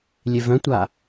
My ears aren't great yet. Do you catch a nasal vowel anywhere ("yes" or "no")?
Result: yes